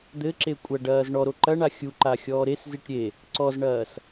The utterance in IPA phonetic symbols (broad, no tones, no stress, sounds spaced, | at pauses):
d̪ ɘ ǁ e kʷʼ ɐ ɖ ɐː z ɳ ɔ ɾ o ǃ ɐ ɳ a xʲ u ǃ a xʲ ɔː ɾ e s z i ʈ ɾʲ e | ǀ ɔ z ɳ ɐː s